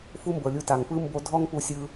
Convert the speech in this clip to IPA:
fu˦mbɤ˨ lʲu˧ta˨ŋ pɯ˦ mbo˦ dʱɔ˦ŋpu˧sʲɯ˧

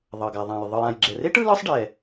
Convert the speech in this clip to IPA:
ðˤɤ˩ɡa˩ðˤã˩j ðˤɯ˩jã˩jɡ͡ǁɛ˩re˥ʈ ɯ˥lɯ˥sˤɖɛ˩

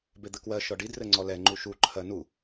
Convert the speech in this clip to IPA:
bed̪ɘkwɜ ʃɔɖi drɘŋ͡ǀɔlɛ ŋ͡ǃuʃu ǃʰɜnu

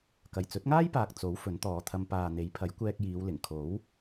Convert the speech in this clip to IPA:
kɐ˨˩jt͡sɵ˨˥t̚ŋaː˥jpaː˨k̚ t͡so˨˥w fɵ˨˥nt̪ɔː˨˧t̪ʰɐ˧m paː˨n̪e˨˥jpʰɐ˨˥j kʷɛː˧k̚jiː˨˧w lɪ˨˩ŋkʰo˨˥w

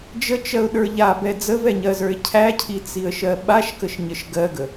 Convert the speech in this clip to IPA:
d͡ʒət͡ʃɜʊ̯ɗə˞ ʎabɛ d͡zəvɛɲɜzə˞ɪ̯ cʰæcʰit͡siə̯ʃɜ ɓaʃkəʃɲəʃ ɡɜɡə

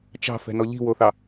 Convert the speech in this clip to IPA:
t͡ʃɑ̤fɛ̤nɔ ʎi̤woθɑ

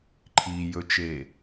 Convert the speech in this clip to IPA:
ǃʰijɵt͡ʃeː

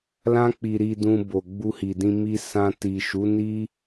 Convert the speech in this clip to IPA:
lã˦ k͡pi˧ɾi˧dũ˧ bo˨ɡ͡bu˧hi˨dĩ˧ mi˧sã˧ti˨ ʃu˨˦ni˦

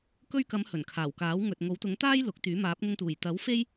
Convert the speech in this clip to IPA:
kɵ˧ɥkɐ˨˧m hɵ˨˩nkʰaː˨˩wkaː˨˥w ŋɵ˨t̚ŋo˨˥wt̪ʊ˨˥ŋt̪aː˥j lʊ˨˥k̚t̪yː˨˥ maː˨˥p̚ŋʊ˧ŋt̪uː˨˩j t̪ɐ˨˥wfe˥j

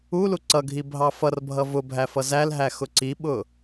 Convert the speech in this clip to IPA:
ulu ǀʌɡʱi bʱɑfʌrbʱʌ vʊ bʱæfʌzælɦæ xʊǀiɓʊ

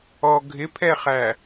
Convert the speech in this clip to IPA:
ɔ ɡʱɪpʰɛχæ

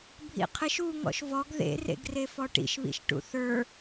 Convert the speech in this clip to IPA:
bʱḭqʰɪʃ u ŋɔ̰ʃvɔɡ ðḛrḛɡrefɔ ʈḭʃβḭʃʈṵ θə˞

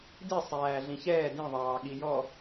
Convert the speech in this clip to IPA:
disˤæː ɮĩçɛː dĩðˤɑː ɠijɔ

